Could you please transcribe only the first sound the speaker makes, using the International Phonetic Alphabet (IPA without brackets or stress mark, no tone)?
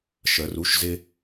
ʃ